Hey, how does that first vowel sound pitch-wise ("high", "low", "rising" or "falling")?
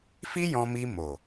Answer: high